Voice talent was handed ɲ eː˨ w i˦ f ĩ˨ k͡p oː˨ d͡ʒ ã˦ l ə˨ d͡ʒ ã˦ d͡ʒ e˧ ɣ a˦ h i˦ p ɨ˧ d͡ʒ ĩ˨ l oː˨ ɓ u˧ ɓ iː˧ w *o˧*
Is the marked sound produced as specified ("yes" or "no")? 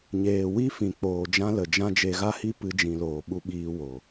no